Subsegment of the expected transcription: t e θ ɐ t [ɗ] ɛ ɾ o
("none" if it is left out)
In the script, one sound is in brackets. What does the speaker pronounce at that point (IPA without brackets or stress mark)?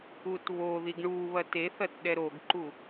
ɗ